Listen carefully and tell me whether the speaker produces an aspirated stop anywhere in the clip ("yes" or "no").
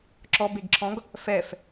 yes